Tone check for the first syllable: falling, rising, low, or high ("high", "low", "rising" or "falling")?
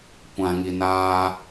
low